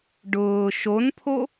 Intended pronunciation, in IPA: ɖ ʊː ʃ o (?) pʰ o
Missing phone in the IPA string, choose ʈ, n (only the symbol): n